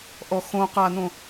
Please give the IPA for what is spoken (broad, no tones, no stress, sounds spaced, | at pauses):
ʔ ɔ x õ q a n õ